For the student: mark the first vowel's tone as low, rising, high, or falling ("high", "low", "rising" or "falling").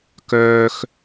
high